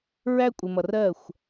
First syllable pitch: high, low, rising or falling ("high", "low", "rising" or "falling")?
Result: high